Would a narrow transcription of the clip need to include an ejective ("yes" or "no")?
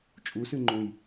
yes